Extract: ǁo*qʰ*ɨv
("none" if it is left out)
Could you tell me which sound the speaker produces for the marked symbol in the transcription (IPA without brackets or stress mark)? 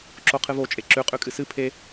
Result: qʰ